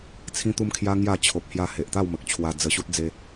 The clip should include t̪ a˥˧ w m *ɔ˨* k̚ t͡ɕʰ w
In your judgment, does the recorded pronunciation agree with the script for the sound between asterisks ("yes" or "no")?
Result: no